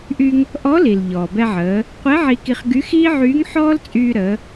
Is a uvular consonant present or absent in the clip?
present